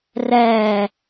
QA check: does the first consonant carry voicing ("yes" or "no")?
yes